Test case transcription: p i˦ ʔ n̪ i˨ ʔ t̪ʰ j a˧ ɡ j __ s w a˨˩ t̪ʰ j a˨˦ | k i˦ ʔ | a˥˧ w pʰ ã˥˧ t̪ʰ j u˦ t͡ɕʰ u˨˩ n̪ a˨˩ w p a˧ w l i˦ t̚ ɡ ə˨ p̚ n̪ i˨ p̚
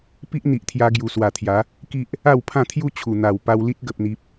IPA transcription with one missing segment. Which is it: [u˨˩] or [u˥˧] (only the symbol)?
u˨˩